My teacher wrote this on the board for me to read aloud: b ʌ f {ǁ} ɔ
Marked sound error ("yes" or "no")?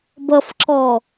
no